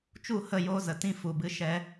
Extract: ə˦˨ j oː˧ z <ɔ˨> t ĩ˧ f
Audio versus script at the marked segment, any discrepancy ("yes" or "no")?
yes